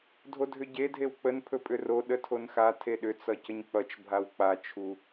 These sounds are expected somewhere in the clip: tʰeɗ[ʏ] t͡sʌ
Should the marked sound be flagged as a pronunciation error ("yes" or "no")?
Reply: no